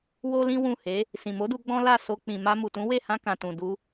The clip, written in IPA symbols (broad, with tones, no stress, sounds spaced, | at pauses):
w o˦ l ĩ˦ w ũ˦˨ h e˨˦ | s ĩ˨ m o˨˦ d u˧ ɡ͡b ɔ̃˦ l a˦˨ s o˧ k͡p ĩ˨ m a˧ m u˨ t ũ˨˦ w e˦˨ h ã˧ k ã˨ t ũ˨ d u˧